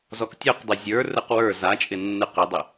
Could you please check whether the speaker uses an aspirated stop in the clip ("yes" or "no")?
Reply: no